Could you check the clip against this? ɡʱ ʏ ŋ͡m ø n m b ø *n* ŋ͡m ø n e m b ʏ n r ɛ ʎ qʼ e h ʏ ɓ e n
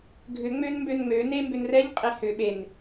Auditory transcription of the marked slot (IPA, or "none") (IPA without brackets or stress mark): n